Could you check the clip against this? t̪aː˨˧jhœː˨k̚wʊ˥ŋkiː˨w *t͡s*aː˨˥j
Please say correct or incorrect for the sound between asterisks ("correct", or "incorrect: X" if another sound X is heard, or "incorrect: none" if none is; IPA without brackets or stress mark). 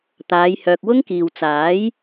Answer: correct